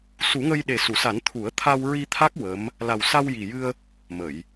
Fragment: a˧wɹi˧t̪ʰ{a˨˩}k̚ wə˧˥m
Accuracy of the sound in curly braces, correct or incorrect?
incorrect